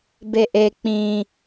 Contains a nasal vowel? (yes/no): yes